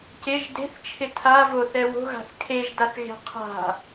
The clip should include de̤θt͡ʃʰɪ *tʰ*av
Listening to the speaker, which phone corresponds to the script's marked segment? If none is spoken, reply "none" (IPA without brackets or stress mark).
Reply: tʰ